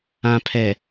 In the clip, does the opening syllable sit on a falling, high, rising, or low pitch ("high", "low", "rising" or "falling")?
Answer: low